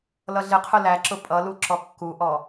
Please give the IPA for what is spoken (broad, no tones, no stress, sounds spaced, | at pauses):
l ʌ ɮ ɪ qʰ ʊ l æ ǁ ʊ pʼ ʌ l u ǁ ɔ kː u ʔ ɔ